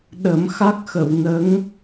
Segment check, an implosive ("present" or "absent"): present